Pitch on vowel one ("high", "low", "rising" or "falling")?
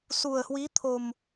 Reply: low